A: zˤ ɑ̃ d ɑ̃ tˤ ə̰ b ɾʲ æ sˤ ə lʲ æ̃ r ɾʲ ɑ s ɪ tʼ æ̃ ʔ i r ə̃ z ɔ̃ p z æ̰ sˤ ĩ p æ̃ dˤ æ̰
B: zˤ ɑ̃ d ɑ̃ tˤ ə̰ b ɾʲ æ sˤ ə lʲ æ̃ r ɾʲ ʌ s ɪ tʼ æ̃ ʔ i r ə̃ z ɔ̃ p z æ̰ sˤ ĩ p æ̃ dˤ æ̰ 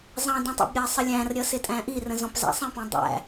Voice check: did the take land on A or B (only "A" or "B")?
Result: B